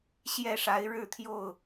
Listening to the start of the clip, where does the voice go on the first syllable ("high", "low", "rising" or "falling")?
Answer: falling